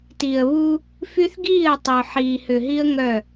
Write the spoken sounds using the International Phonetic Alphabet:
ti˨ə̯βu˦ | fy˦θɡiː˦˨ə̯tˤə˨ʊ̯ħiː˨ hʏ˨ɦi˦ə̯ ŋœ˦˨

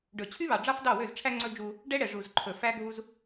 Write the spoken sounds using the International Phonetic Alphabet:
ɖɵ˨t͡ɕʰy˦βɑ˨ ɖ͡ʐɑ˦fdɑ˦˨wø˦˨zʈ͡ʂʰæ˦ ŋ͡ǀɵ˦ d͡ʒu˦ | ɖɛ˦ɽɛ˨ ʐu˨zǃʰɵ˨ fæ˦ɡʱu˦z

